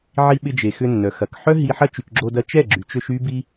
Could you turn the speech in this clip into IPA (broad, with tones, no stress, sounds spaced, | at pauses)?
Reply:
ʕ i˧ ɓ ɪ˧ d͡ʒ e˨ x ʏ˧ nː œ˨ x ɐ˨ k ħ œ˦ ɦ i˧ ħ ɐ˦ t͡ʃ y˨ k ɡ͡ǁ o˧ d ɐ˧ t͡ʃ ɛ˦˨ ɡ͡ǁ y˨ t͡ʃ ø˧ ʃ y˦ b i˦